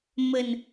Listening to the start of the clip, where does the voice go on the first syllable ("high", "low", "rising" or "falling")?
low